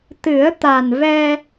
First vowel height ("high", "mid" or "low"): high